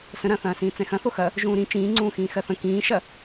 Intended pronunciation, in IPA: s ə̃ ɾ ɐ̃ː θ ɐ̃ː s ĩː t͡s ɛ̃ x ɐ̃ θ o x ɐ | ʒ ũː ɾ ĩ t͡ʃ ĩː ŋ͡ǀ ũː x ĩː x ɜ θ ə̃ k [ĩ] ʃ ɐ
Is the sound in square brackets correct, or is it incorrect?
incorrect